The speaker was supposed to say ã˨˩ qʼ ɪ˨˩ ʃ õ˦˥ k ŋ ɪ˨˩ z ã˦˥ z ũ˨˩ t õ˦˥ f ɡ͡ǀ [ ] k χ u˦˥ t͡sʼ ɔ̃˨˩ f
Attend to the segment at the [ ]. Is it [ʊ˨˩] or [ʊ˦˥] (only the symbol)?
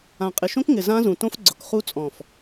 ʊ˨˩